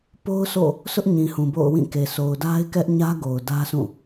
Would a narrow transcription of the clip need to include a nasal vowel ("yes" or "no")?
yes